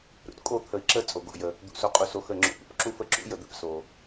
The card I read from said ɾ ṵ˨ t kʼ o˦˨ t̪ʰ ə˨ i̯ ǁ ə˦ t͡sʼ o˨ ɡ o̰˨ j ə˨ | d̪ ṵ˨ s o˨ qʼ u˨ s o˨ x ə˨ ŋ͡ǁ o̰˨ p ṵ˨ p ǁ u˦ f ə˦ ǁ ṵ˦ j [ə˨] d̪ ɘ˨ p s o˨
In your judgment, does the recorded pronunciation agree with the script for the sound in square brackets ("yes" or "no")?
yes